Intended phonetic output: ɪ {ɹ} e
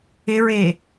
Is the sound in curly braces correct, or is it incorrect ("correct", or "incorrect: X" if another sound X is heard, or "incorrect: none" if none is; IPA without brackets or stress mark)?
correct